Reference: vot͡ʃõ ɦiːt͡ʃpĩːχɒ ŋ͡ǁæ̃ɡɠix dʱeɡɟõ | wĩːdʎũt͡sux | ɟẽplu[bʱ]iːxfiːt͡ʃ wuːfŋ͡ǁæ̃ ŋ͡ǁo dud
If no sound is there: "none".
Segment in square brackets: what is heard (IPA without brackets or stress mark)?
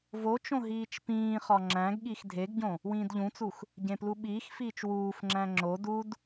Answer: ɓ